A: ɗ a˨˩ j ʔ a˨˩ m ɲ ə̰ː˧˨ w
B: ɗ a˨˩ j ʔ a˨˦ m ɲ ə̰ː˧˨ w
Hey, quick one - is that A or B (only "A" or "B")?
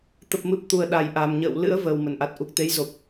A